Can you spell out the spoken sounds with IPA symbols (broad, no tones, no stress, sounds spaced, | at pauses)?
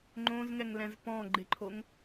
ŋ͡ǃ õ z ŋ ɛ ŋ l ɛ̃ z p ɔ̃ ɡ͡ǃ ɪ ǃʰ o ŋ